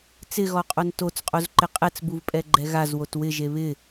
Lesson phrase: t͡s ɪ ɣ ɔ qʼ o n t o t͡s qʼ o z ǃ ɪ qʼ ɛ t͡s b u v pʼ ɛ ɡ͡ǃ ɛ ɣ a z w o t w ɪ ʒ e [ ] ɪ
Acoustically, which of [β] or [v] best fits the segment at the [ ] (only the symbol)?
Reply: β